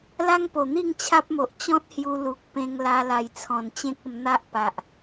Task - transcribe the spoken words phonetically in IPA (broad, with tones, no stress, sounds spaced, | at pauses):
l a˦ ŋ p o˨˩ n̪ i˥˧ ŋ t͡ɕʰ a˦ p̚ m o˨ ʔ t͡ɕ ɔ̃˦ t̚ h j u˧ l u˨ k̚ p ẽ˧ ŋ l a˧ l a˨˩ j t͡sʰ ɔ̃˨˩ n t͡ɕ ẽ˦ k̚ ə˧ m n̪ a˦ ʔ p a˨ ʔ